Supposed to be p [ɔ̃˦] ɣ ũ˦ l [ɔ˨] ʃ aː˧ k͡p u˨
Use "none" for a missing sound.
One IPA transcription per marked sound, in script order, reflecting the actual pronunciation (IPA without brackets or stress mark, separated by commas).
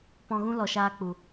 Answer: ɔ̃˧, ɔ˨